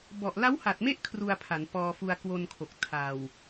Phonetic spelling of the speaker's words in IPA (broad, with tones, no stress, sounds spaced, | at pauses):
b ɔ˨˩ ʔ l a˦˥ w h a˨˩ t̚ m e˦˥ ʔ kʰ r u˧ a̯ pʰ a˩˦ n p ɔː˧ f u˧ a̯ k w o˧ n kʰ o˨˩ k̚ tʰ a˨˩ w